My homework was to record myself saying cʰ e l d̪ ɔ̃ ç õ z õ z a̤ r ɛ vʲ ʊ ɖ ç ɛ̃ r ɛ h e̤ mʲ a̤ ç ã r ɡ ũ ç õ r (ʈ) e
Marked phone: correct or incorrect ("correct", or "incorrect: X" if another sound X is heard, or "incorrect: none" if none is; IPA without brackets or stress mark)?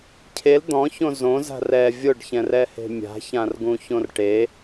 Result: correct